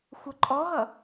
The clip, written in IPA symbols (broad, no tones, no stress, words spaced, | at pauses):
xʷʌǃʼɔɦʌ